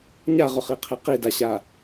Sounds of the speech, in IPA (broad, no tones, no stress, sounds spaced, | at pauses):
ɲ a ʁ ʊ χ i qʰ e q i d a ɕ a